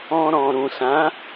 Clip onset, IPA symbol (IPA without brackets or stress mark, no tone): ɔ̃